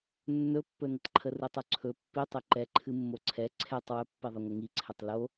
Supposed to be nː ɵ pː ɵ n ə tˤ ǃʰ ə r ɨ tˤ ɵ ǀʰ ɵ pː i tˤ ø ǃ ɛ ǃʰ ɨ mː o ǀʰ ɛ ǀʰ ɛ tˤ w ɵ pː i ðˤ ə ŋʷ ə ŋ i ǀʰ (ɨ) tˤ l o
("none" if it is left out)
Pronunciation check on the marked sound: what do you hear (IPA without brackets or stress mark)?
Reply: ɛ